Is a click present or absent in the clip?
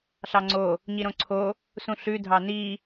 present